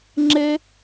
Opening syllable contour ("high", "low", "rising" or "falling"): high